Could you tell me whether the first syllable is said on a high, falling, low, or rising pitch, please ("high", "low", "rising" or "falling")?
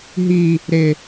low